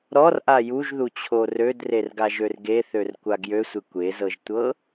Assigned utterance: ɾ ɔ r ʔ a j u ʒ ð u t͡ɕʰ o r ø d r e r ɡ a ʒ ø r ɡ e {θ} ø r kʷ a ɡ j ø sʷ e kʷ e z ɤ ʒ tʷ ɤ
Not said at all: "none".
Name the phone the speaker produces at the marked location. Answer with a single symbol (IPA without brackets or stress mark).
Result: θ